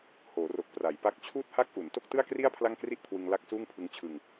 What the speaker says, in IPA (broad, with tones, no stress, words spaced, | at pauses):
hoː˩˦ro˨˩k̚ pra˩˦jpa˦˥k̚ t͡ɕʰuː˥˩t̚ha˥˩k̚ʔu˩˦n to˥˩k̚tɯ˥˩a̯kri˥˩a̯ pʰla˥˩ŋkri˥˩ʔkʰwɯ˧ŋ la˥˩k̚suː˥˩ŋpʰɯ˦˥ŋ t͡ɕʰɯ˧ŋ